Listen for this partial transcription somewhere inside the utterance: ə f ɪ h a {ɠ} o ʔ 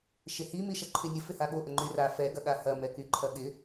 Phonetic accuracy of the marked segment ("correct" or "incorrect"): correct